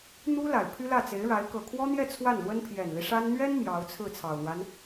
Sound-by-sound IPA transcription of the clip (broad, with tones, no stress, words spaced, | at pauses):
n̪u˥ la˨˩ɪ̯pʰy˥lä˥˩ t͡se˧˥ɪ̯ɻa˧˥ɪ̯ kɤ˨˩kʰwɔ˥n̪jɛ˥˧ t͡sʰwa˥˩nlwə˥n pʰjɛ˨˩nli˦ʂa˥n n̪ɥɛ˥n mjɑ˧˥ʊ̯t͡sʰɹ̩˥˩ t͡sʰɑ˨˩ʊ̯n̪wa˦n